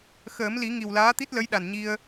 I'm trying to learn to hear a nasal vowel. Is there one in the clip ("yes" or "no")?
no